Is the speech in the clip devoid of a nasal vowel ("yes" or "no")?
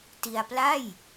yes